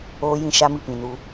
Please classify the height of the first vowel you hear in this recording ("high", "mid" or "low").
mid